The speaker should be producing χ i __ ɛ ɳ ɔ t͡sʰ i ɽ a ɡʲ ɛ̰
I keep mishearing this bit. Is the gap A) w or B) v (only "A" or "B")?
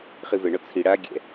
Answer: B